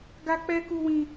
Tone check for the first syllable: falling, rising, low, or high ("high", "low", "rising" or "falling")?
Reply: high